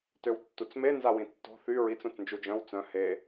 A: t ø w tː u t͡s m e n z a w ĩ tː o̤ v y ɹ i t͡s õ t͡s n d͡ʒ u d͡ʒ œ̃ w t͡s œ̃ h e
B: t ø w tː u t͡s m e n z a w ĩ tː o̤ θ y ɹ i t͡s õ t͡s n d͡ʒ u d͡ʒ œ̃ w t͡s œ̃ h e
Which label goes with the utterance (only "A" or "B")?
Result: B